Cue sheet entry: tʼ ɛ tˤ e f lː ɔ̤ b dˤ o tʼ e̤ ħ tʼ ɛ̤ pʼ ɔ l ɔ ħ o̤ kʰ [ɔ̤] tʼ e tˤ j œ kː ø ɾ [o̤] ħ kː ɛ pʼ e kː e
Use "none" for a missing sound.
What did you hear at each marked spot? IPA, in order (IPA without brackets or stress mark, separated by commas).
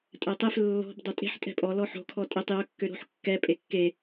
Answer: ɔ, o̤